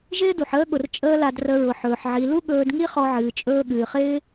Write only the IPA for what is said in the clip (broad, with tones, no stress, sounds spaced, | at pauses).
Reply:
ʒ ɪː˦ d u˨ ħ əː˦ ɠ ʊ˨ r t͡ʃʼ əː˦ l a˧ d r ə˧ ɹ ʊ˨ ħ ɵː˨ ħ ʕ i˨ l u˦ ɠ ɵː˧ d ŋ i˦ χ ɔ˧ ʕ ɨː˨ t͡ʃʼ ɵː˧ ɠ ɨː˨ χ ɪː˦